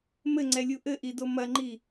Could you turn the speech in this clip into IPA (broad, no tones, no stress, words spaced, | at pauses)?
mɘŋ͡ǀɛlʲu ʔɘʔido mɐŋ͡ǃi